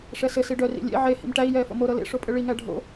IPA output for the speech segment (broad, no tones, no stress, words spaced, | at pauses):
ʂɛsɘ siɖœ rḭlʲḛ ʕe hḭmʈæi̯ jɛːfo̰mo ɾɤlḛ ʂopʼɘɭi ŋæɖʱo̰